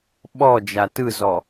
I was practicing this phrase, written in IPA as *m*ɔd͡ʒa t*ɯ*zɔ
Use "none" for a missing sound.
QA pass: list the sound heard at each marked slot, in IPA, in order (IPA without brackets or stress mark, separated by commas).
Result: ɓ, ɯ